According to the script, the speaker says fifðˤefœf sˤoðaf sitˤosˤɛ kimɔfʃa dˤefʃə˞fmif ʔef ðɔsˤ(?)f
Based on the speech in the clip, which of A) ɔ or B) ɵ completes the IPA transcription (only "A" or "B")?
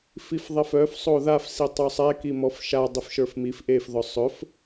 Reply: B